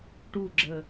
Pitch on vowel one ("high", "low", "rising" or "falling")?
falling